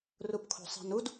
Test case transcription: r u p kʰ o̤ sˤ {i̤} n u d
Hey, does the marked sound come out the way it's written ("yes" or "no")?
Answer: yes